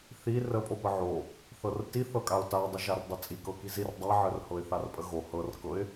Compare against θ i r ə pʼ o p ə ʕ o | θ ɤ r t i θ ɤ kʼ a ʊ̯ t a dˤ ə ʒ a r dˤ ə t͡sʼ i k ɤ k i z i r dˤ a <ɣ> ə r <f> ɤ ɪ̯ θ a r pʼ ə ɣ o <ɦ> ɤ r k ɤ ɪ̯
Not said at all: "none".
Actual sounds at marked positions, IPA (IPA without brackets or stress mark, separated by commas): ʕ, h, h